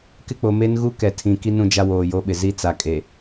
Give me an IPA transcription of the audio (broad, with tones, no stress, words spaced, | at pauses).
kɪ˦ k͡po˨me˦n ɣu˦kɛ˨tʰĩ˨ki˦ nũ˦d͡ʒa˦woː˨jo˦ ɓɪ˨zi˦ t͡sa˨kʼe˨